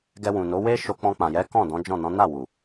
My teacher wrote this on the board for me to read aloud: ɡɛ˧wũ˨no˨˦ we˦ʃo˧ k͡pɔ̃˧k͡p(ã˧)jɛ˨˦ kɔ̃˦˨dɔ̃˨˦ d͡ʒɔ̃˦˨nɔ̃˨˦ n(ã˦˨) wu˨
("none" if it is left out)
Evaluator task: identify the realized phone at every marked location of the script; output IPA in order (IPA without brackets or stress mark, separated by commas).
ã˨, a˦˨